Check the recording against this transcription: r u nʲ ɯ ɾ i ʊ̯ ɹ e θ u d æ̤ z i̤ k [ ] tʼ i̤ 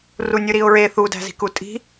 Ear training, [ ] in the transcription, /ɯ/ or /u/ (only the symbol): u